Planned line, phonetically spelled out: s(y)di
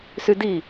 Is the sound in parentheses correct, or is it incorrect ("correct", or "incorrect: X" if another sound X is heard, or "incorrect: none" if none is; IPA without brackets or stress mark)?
correct